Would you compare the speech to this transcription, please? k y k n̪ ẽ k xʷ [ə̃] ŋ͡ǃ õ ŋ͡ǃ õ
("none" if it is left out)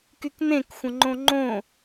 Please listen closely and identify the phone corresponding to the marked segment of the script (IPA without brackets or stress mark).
ə̃